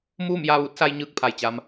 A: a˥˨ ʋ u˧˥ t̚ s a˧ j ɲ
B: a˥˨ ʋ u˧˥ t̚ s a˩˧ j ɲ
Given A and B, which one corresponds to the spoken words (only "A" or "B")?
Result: A